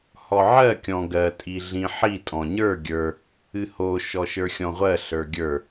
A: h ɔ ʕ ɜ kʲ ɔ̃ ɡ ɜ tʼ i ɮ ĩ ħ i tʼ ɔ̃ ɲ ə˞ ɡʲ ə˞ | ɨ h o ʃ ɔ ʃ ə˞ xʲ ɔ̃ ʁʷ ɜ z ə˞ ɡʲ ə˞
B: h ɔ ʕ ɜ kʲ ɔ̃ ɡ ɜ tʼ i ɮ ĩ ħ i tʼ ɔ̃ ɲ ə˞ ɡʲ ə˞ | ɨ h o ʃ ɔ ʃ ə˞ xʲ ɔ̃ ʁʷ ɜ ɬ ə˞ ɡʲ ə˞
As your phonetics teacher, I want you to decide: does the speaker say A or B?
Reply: B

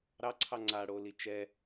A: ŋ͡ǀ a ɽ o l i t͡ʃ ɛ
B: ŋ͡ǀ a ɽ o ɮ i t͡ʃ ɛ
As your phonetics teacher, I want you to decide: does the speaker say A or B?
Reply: A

